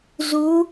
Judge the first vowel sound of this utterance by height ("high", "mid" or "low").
high